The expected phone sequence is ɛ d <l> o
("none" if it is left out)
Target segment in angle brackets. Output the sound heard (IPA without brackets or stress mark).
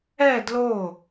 l